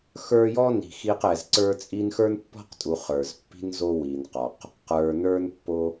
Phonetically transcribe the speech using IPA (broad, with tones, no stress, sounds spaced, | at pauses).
x ə˞˦ j ɔ˥ n i̤˨ x i˦ q ɛ˨ z ǀ ə˞˥ t͡sʼ i˦ n x ə˞˥ n pː ɔ̤˥ q tʼ u˨ χ ə˞˩ z pː i̤˦ n z o˦ w i˩ n q ɒ˩ q | q ə˞˩ n ə˞˥ n pː o˦